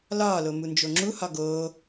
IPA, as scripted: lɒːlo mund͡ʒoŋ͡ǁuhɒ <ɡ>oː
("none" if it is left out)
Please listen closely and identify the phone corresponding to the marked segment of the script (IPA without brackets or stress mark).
ɡ